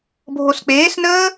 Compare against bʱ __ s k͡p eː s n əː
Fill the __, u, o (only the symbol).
o